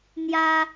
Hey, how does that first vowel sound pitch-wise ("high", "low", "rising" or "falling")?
high